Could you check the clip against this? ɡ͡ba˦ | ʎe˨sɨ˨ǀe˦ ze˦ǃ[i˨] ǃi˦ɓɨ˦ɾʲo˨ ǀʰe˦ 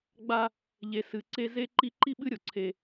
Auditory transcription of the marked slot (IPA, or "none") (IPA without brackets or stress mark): i˦